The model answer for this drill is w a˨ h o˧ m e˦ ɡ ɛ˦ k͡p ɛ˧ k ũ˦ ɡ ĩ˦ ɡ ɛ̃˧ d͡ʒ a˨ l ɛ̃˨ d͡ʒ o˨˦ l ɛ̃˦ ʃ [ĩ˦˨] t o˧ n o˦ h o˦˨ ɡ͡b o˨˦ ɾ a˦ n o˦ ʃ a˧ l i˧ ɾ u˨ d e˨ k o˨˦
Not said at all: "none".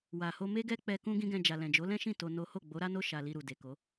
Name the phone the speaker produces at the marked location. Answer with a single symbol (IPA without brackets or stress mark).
ĩ˦˨